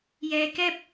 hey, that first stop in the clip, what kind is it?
plain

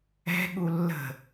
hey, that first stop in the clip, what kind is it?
implosive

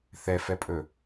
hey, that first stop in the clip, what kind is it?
ejective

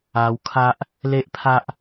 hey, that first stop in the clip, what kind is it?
aspirated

